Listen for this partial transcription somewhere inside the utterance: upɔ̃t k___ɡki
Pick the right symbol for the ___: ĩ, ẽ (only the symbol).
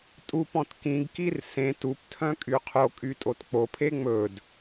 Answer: ĩ